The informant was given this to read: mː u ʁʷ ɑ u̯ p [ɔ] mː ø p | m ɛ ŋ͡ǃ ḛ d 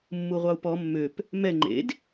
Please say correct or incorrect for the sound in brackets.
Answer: correct